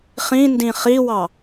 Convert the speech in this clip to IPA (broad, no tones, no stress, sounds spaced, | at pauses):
χ ĩ n d ĩ χ i w ɑ